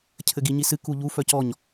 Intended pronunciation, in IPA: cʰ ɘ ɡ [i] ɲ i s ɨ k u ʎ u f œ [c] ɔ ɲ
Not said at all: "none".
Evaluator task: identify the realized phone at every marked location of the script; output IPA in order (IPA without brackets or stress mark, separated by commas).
i, c